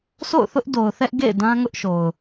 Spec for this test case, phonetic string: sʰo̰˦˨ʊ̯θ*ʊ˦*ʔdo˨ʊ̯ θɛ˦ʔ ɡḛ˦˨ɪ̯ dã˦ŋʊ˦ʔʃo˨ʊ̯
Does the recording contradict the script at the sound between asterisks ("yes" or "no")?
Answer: no